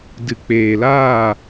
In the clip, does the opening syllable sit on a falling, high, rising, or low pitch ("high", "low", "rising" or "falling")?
low